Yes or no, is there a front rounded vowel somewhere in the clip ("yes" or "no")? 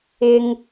no